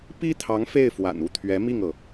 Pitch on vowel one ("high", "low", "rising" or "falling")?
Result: high